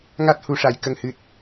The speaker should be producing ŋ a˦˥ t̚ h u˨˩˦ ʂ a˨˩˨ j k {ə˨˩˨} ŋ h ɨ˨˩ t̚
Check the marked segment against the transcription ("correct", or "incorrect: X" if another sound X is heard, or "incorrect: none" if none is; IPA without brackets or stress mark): incorrect: ə˨˩